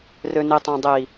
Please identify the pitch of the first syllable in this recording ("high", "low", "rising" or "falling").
low